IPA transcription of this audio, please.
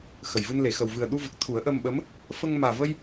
x ə˨˩ j v ɨ˧ n l e˨˩˨ x ə˨˩ w v ɨ˨˩ ə̯ ɗ u˧ v ə˨˩ k̚ t̪ʰ u˨˩˦ ə̯ ʔ ə˧ m ɓ ə˧˥ m | f ə˧ ŋ m aː˨˩ v ə˧ j

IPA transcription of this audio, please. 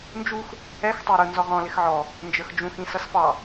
n d͡ʒ u x | ɛ x tˤ ə˞ ɾ ʊ n z ɔ ʁ ɔ̃ l ɪ x ʕ ɔ | n d͡ʒ ə˞ x d͡ʒ ũ x ĩ s ʌ s f ɑ

